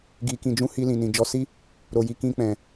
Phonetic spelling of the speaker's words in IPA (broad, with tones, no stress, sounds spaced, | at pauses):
ɡ i˨ k ĩ˨ d͡ʒ ũ˧ h i˧ l ĩ˨ n ĩ˨ d͡ʒ ɔ˨˦ s i˦ | ɾ o˨ j i˨ k ĩ˧ k͡p ɛ̃˨